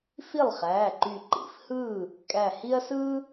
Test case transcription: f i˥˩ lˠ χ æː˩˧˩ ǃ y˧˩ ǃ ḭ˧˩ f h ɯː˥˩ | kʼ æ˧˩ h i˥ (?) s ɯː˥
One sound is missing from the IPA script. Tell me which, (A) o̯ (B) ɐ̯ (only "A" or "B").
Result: B